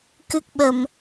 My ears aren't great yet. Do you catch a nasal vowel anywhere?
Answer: no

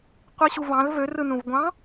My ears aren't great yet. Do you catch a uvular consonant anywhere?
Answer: yes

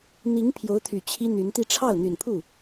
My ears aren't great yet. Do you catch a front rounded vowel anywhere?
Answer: yes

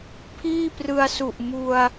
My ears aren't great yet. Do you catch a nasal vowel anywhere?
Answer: no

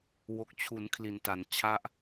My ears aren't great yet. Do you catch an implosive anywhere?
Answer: no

